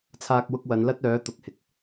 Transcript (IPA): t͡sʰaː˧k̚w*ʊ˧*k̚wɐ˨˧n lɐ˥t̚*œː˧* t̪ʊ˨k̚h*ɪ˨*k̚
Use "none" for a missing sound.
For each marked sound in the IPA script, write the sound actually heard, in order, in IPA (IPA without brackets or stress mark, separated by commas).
ʊ˧, œː˨˥, ɪ˨